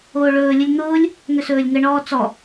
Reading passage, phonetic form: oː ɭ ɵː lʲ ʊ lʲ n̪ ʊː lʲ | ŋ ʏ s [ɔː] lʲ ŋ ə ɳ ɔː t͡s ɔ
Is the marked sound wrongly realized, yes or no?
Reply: yes